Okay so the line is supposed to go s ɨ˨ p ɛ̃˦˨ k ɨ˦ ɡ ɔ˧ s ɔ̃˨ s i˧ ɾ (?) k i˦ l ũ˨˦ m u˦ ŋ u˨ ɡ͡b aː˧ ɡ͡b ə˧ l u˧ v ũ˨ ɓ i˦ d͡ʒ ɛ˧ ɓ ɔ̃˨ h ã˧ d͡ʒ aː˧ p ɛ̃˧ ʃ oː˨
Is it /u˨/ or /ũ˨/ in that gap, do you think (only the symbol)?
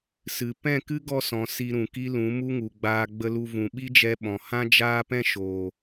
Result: ũ˨